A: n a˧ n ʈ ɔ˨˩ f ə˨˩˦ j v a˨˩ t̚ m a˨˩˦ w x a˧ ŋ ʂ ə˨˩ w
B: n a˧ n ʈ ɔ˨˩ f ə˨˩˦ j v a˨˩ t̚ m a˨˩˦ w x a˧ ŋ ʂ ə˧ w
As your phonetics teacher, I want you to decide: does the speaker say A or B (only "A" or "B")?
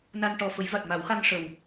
A